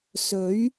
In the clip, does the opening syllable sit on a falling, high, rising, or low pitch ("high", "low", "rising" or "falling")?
rising